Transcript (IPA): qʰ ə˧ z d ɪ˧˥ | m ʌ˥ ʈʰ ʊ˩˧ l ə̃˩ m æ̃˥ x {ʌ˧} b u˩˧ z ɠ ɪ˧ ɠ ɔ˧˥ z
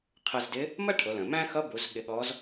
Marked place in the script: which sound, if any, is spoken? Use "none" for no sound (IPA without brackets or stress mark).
ʌ˧˥